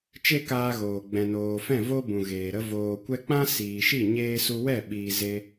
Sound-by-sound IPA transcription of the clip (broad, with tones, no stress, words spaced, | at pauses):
t͡ʃe˦kaː˧ɣoː˨ ɡ͡bɛ̃˨noː˨fɛ̃˦˨ vo˧ bũ˨ɣeː˨ɾə˧ voː˨kʷɛ˧k͡pã˦ siː˨ʃi˦˨ ɲeː˧ su˧wɛ˦˨ ɓiː˨ ze˧